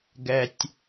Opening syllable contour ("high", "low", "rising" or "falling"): low